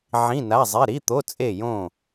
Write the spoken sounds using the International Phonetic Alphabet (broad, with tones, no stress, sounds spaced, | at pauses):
ʕ ĩ˧˥˧ n a˧˥˧ zˤ e˧˥˧ ɾ i˧˥˧ t̪ o˧˥˧ t͡sʼ e˥˨ j õ˥˨